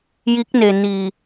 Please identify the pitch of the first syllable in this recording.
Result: rising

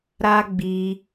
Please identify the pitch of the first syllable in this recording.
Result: high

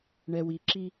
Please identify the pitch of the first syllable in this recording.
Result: low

